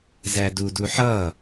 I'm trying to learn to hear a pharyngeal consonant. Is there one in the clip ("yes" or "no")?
yes